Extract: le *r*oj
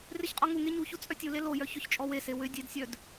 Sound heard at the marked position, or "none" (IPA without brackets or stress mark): l